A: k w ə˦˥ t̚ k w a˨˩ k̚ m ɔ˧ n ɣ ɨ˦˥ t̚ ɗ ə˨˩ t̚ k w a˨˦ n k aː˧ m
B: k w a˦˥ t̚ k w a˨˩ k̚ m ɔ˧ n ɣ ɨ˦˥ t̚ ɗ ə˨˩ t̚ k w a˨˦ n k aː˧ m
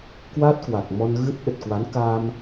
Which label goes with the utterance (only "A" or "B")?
B